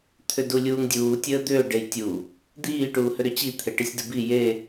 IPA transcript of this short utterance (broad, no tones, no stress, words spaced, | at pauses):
t̪ʰʏdulʲuːŋdʲuː tʲəːd̪ʏː ɖejtʲu | d̪iː ʈuːhʏɾʏt͡ɕi t̪ʰeʈisʲdəbi je